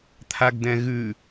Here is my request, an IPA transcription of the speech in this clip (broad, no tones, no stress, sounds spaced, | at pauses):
t̪ʰ a ɡ d ɛ̃ ɣ ʉ